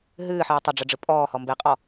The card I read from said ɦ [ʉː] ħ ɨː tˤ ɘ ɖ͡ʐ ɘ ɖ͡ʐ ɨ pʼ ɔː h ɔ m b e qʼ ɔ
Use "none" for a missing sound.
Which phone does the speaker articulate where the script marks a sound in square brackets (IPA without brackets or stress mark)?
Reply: ɨː